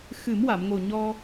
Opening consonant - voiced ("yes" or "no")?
no